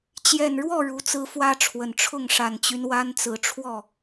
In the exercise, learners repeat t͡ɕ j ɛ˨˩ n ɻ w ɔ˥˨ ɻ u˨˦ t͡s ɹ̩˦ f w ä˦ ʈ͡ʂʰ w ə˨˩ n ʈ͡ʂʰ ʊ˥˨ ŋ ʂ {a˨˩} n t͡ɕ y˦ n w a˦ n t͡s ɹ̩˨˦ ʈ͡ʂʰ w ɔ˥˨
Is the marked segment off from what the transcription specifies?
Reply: no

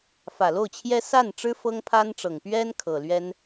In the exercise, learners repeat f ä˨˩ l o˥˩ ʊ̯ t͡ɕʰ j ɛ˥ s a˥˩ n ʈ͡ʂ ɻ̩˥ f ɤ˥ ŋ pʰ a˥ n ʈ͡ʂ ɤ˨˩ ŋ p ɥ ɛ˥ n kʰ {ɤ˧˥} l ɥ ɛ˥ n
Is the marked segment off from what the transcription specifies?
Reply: yes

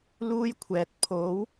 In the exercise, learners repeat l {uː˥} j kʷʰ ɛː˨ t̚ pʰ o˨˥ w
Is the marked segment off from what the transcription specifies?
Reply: no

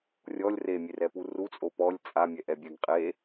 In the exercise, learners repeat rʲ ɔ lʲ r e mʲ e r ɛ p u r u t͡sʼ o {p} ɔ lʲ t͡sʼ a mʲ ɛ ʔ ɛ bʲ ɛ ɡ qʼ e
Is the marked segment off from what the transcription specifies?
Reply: no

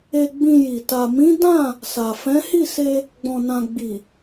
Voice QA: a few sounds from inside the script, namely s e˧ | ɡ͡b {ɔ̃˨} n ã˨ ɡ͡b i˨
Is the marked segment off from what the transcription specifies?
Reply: no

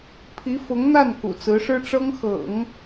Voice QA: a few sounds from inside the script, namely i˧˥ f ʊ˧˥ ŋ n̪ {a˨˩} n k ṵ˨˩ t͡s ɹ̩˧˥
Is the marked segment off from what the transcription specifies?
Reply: yes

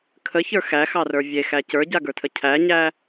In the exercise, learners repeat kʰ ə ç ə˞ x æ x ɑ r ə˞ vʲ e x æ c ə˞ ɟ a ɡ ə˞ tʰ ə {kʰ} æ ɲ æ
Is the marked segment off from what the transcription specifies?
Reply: yes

